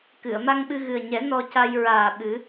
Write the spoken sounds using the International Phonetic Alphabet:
kɨ˨˩˨ə̯ma˧ŋɓɨ˧ ɣɨ˨˩ə̯ɲɛ˨˩˦ nɔ˧ca˧j ɹaː˨˩ ɓɨ˨˩˦

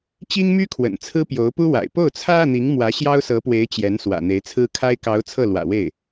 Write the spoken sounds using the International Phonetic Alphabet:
t͡ɕi˥ŋmy˥kʰwə̰˨˩n t͡sʰɹ̩˥pjo˧˥ʊ̯pu˥wa̰˨˩ɪ̯ po˥˩ʊ̯t͡sʰä˥ä˨n̪i˧˥ŋ mwä˧˥ ɕjɑ˥ʊ̯sɤ˧˥pwe˧˥ɪ̯ t͡ɕjɛ˧˥n swä̰˨˩n̪e˧˥ɪ̯t͡sʰɹ̩˥ kʰa˥ɪ̯kɑ˧˥ʊ̯ t͡sʰɤ˥˩lwä̰˨˩we˥˩ɪ̯

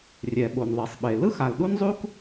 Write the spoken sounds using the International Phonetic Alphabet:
rʲɛ˩ ɓo˩nðˤe˩sˤɓe˩ lɯ˥x a˩lɗu˥nzˤu˥k

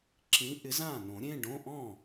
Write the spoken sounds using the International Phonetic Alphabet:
ǁʰĩ˨˥ ʔɪ˨˥zãː˥˩nõ˨˩˦ ɾʲẽ˧˥˧ɖõ˧˥˧ ʔɔ̃˥˩

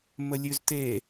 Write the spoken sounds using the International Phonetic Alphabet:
məlʲʉzte

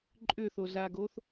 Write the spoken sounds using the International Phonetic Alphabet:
ǃʼʏθozaɡoθ

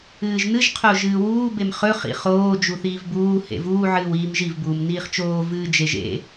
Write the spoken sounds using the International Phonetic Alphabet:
ɨːʒnɨʒ qʰoʒɨːwuː bemχɵ χḭχoː d͡ʒuθiːvbuː hḛvuː ʕɨːwiːmʒiv buːmniːχt͡ʃoː vɨːd͡ʒeʒḛ

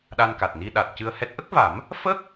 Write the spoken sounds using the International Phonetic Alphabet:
ɗa˧nka˨˩t̚ni˧ ɗa˨˩t̚cɨ˧ə̯hɛ˦˥t̚ ʔə˦˥k̚va˨˩˦m | fə˦˥k̚

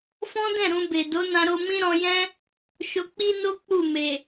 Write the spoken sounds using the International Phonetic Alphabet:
fɔ̃˦dɛ̃˦˨ ɾũ˧be˨ do˨˦nã˧ɾo˧ mĩ˦ɾɔ̃˧jɛ̃˦ | ʃo˧k͡pi˦no˦ k͡pu˦˨me˨

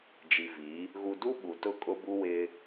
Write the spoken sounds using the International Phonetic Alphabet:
d͡ʒi˨vi˨˦ | ɣu˨du˦ ɓu˨tʊ˦˨ kʼʊ˦bu˦ wɪ˦

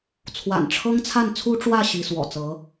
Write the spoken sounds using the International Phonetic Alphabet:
t͡sʰwa̰˨˩nʈ͡ʂʰɤ˥ŋt͡sʰa˥˩n t͡sʰu˥ʈ͡ʂwä˥˩ ɕi˧˥swɔ̰˨˩ t͡sɤ˧˥

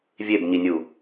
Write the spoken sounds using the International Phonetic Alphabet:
vʲebɲinʲu

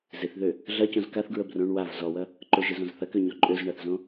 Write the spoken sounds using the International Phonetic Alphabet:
zɪθðø | ɮɐcõz kaθɡɹə brõɳ wav zɔwɐ | ǃʊʒɪzõz θɐkøɲɔ ǃʼøzɳaθzõ

